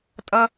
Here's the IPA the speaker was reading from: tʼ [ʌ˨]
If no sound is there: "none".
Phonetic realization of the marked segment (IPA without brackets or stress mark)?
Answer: ʌ˥